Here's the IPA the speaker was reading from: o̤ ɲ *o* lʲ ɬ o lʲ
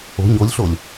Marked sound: correct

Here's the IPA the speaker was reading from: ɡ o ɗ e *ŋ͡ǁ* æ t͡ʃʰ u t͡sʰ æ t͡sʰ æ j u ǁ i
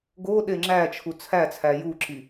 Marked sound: correct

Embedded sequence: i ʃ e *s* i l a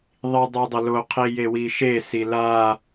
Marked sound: correct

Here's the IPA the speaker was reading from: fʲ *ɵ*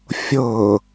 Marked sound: incorrect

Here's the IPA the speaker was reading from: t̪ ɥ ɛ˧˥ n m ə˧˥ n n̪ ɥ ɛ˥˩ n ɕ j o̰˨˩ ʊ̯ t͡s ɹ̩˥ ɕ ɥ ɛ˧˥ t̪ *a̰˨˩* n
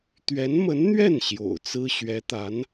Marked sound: incorrect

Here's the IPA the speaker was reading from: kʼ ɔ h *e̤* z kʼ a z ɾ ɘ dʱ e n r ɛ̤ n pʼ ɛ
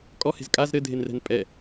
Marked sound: correct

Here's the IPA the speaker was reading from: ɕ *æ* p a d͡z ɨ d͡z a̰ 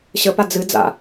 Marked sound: incorrect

